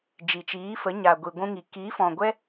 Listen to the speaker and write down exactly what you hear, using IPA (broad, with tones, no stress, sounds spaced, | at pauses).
d͡ʒ i˨ t͡ʃ iː˨˦ f ə˨˦ ɲ a˨ ɡʷ i˨ ɡʷ ũ˧ ŋ i˨ k i˨˦ f ɔ̃˨ ɡʷ ɛ˦